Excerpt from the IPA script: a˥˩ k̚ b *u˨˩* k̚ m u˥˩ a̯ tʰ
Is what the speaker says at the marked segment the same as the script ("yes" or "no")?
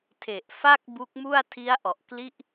no